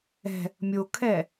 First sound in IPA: ɛ̤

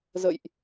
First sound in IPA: z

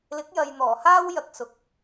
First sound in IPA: l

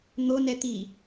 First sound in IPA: n̪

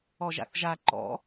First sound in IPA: ɔ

